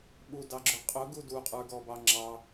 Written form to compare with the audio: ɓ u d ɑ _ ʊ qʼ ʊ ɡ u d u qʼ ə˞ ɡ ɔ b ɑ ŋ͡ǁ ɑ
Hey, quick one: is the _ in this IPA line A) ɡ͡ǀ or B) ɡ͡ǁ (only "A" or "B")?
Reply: B